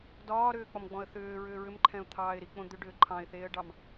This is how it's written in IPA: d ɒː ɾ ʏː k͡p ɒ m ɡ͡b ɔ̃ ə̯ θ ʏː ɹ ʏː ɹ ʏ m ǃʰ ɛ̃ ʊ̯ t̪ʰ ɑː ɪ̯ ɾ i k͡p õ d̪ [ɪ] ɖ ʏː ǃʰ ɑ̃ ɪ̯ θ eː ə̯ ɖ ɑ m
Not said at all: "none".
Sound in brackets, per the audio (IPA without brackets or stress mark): ʏ